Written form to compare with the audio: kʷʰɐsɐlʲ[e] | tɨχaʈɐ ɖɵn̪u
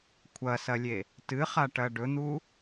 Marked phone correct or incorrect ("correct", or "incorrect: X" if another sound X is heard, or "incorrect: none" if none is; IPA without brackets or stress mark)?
correct